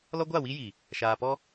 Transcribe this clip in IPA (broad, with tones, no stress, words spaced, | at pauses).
lɔ˦ɡʷa˦˨wi˦ji˨ | ʃaː˨pɔ˦